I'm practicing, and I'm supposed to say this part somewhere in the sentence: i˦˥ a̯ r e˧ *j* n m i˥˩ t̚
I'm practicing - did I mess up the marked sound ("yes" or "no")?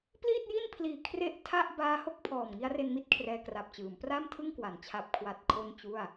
yes